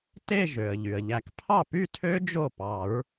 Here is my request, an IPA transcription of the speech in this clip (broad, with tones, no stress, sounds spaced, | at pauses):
t e˥˧ ʒ ø˩ ə̯ ʎ y˩ ə̯ ʎ æ˨˩˦ k pʰ ɑ˥˩ p y˥˧ tʰ ø˦˥ d͡ʒ o˥˩ p ɑ˨˩˦ ɹ